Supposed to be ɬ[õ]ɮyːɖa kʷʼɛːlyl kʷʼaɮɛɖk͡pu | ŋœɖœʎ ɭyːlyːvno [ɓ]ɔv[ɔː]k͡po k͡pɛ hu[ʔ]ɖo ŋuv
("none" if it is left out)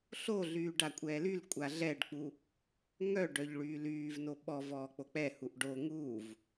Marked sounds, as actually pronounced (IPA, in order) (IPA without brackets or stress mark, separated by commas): o, ɓ, ɔː, ʔ